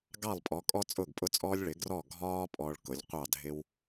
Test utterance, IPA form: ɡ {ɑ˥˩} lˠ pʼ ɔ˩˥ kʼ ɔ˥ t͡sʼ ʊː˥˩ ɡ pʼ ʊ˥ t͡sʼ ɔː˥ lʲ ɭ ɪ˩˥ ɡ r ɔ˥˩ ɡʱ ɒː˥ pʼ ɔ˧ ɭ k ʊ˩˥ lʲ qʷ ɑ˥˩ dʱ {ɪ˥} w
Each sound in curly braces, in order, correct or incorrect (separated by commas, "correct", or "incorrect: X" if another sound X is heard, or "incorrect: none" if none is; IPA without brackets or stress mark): correct, correct